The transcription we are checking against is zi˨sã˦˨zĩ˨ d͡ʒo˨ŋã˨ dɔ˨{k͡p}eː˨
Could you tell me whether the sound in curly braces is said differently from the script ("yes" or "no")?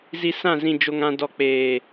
no